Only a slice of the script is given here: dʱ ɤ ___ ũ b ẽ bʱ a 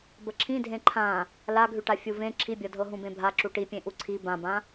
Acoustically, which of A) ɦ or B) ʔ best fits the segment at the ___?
A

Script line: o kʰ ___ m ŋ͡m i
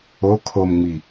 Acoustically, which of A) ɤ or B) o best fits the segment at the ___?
B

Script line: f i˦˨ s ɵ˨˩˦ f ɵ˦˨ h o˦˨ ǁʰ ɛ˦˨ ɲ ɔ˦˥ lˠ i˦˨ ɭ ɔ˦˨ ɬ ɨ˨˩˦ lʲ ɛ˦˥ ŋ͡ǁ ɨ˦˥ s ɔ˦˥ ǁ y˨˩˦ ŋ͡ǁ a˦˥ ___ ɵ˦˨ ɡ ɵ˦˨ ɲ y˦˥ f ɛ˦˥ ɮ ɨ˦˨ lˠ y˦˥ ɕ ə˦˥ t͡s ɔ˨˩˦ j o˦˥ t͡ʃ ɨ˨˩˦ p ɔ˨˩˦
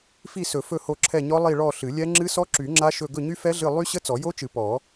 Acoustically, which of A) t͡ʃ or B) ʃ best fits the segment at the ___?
B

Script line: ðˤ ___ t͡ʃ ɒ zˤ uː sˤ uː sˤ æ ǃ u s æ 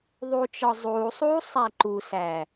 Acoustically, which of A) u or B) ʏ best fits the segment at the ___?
A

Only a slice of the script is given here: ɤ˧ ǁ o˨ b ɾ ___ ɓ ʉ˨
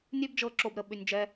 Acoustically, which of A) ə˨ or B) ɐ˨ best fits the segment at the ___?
A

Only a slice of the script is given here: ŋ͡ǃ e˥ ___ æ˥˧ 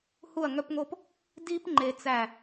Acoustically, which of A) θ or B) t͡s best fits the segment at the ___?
B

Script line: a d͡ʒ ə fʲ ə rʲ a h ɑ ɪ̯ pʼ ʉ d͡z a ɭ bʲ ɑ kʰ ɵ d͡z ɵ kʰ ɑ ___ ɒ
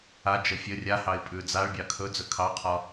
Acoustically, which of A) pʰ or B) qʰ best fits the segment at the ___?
B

